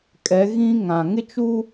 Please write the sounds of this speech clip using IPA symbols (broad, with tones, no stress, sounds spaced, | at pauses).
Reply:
kʼ ɛ˨˦ ɣ ĩ˦ ŋ ã˨ ŋ ɪ˦ t͡ʃ u˦